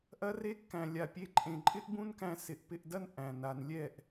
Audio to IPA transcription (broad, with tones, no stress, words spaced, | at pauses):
ʔɐ˧re˧kːæ̃˨lʲa˨ pʲe˧ǃʼẽ˨ǃʼɪ˦ʔ bũ˦nkæ̃˧ sɪ˨ʔ pɪ˧ʔdɐ˦n ʔæ̃˨n a˨nlʲɛ˦˨ʔ